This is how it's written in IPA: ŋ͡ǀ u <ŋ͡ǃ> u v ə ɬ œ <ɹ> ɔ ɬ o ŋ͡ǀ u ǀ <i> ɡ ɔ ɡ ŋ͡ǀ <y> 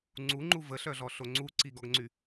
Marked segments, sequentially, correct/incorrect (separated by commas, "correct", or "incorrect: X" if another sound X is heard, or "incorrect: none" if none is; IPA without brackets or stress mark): correct, incorrect: ɮ, correct, correct